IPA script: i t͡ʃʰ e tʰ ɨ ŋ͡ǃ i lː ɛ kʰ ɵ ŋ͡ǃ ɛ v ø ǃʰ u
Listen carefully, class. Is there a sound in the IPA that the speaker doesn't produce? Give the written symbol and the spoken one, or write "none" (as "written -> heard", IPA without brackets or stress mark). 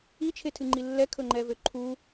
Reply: none